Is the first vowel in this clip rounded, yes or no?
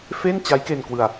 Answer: no